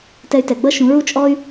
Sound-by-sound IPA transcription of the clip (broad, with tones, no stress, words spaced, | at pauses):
tɛ˧y̯tɛ˨ɡ͡bʌ˦ʃũ˨˦ ɹu˦t͡ʃʼɔ˦y̯